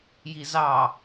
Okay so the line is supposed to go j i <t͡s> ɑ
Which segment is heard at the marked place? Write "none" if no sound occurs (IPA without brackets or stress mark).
z